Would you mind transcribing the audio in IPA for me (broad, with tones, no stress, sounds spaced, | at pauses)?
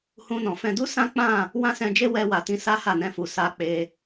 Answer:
h ũ˧ n ɔ̃˨ f ɛ̃˧ d u˦ s ã˦ k͡p ã˦˨ | w ã˦ s ɛ̃˧ d͡ʒ e˦ w ɛ˧ w a˨ t ĩ˧ s a˦ h a˦˨ n ɛ̃˧ f u˨ s a˧ k͡p e˧